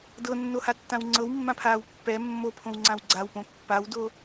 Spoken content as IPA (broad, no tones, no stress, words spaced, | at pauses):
dɤnːohatːãw ŋ͡ǀɤwmːãpʰaːw pːɛ mːopʰõwŋ͡ǀãw ɡ͡ǀawpõ pːawdo